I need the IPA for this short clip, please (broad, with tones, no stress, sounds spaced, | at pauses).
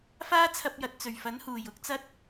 f aː˥ t͡sʰ ɐ˧ p̚ j ɐ˨ t̚ t͡s ɵ˨˩ ɥ f ɐ˨˥ n h uː˨˩ j ʊ˧ k̚ t͡s ɐ˧ t̚